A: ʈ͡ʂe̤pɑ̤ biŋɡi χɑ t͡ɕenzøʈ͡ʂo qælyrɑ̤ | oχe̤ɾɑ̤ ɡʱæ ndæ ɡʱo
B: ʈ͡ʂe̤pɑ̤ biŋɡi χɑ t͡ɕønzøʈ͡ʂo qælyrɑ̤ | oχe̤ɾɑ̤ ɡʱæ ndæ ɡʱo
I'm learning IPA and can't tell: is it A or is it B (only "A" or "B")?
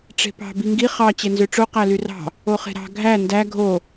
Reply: A